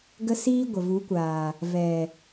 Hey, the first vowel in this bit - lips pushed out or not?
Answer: no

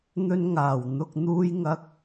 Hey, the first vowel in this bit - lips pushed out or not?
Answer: yes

